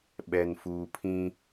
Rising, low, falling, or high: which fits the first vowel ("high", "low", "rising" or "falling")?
low